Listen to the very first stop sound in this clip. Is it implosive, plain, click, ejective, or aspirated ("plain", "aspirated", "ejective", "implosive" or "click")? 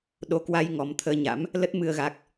implosive